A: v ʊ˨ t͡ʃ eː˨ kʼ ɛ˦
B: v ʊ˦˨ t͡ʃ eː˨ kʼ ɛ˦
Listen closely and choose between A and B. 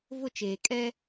B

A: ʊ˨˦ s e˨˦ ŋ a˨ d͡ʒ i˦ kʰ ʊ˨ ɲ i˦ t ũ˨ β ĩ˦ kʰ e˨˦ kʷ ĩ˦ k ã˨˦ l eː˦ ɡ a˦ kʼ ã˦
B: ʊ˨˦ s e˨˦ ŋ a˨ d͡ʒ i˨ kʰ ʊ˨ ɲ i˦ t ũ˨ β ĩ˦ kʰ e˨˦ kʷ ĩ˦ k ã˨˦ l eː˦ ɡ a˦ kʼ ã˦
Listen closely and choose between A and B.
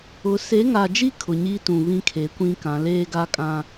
A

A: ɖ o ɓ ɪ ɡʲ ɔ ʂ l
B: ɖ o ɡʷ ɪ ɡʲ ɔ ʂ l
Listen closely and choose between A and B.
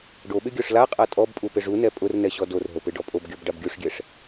A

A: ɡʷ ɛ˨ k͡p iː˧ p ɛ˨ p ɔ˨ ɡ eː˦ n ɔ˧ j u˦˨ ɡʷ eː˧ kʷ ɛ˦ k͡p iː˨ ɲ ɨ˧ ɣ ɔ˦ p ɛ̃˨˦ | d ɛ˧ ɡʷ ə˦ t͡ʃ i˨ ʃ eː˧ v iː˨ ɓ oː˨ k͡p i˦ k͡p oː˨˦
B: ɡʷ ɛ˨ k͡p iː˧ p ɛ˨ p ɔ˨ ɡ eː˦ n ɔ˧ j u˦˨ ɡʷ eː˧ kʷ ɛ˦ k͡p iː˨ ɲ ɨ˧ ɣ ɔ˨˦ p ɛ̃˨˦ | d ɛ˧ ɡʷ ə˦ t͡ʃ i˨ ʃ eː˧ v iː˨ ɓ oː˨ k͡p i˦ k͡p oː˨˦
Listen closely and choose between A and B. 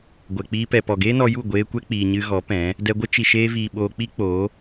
B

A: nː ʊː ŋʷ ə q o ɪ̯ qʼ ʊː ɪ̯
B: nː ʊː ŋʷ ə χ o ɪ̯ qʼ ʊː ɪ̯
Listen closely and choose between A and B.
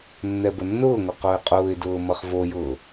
A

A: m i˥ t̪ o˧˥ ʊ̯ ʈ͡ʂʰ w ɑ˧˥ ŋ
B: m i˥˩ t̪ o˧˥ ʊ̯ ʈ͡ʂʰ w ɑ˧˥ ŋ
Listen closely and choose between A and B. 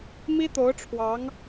A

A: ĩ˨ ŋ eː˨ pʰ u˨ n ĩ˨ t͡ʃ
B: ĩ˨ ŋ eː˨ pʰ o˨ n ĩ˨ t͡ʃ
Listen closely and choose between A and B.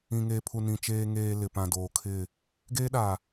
A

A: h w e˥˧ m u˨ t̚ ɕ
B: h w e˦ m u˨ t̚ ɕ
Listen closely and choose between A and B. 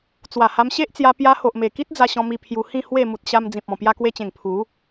A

